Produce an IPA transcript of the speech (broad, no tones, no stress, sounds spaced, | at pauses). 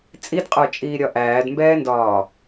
t͡sʼ i d qʼ ə˞ t͡ʃʼ iː ɾʲ ɒ ʔ æː d m b ɛː n d ɒː